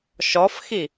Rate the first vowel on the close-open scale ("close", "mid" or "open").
mid